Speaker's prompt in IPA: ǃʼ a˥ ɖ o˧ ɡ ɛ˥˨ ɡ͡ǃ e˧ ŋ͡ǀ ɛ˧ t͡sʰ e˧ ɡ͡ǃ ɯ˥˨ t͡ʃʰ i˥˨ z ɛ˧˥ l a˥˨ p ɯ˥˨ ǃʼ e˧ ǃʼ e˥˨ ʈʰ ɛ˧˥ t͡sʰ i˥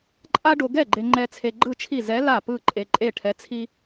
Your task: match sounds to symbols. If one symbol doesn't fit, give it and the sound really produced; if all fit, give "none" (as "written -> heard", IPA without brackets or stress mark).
ŋ͡ǀ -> ŋ͡ǃ